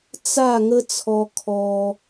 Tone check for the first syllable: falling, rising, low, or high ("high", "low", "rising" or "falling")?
falling